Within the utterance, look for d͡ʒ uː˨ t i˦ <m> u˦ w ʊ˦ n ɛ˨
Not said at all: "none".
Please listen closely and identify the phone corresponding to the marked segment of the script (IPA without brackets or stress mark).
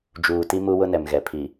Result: m